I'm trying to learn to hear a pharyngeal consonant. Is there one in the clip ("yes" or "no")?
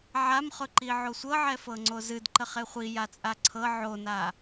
yes